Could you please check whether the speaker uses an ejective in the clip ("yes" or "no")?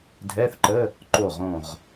no